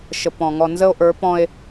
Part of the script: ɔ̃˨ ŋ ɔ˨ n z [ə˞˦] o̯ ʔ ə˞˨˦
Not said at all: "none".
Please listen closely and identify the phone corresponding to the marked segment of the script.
ə˦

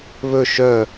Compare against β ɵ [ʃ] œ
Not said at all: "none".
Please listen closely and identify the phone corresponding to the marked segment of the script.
ʃ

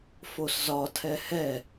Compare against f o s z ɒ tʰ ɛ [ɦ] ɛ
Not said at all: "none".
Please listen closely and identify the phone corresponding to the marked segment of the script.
h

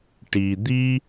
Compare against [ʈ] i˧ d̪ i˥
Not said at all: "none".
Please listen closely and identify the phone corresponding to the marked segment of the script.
ʈ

